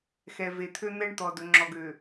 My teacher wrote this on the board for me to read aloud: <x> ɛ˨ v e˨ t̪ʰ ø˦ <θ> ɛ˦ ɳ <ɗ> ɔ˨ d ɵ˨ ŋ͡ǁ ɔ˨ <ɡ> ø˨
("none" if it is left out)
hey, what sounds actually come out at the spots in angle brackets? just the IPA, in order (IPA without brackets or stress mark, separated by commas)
x, n̪, t̪, ɡ